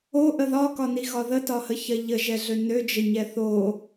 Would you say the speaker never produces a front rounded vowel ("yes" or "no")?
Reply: no